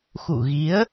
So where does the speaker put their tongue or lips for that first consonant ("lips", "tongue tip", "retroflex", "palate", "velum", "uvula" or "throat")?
velum